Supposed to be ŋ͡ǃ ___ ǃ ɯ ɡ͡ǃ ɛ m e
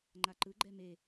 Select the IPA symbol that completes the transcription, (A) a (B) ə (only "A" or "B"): A